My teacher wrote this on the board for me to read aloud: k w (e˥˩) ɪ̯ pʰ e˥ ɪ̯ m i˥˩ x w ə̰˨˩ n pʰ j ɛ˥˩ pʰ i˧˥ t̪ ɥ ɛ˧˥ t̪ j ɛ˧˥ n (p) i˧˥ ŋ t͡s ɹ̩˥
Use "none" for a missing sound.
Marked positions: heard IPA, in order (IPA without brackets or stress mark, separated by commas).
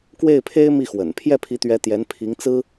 e˥˩, pʰ